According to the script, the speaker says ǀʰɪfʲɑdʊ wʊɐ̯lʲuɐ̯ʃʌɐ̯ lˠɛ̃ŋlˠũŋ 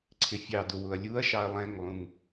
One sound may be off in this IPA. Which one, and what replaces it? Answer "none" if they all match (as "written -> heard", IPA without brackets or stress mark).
ʌ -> ɑ